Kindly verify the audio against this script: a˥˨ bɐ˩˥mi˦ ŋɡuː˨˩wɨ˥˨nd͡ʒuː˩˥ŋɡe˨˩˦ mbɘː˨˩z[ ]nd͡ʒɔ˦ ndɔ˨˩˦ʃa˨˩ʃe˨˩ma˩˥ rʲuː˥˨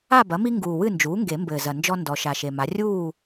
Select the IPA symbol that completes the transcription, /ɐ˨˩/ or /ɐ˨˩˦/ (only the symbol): ɐ˨˩